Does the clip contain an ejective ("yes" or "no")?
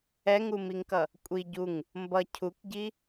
yes